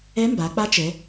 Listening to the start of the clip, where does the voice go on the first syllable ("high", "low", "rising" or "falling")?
rising